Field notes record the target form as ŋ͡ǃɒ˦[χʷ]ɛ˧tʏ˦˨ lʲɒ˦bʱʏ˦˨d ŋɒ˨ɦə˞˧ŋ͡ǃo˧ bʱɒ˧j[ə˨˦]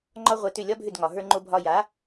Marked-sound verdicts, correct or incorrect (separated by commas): incorrect, incorrect